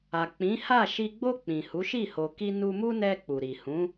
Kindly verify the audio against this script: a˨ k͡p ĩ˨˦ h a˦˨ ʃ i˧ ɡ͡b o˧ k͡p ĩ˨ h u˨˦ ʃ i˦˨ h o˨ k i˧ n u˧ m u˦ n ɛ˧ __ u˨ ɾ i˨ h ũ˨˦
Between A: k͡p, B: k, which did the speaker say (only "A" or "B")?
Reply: A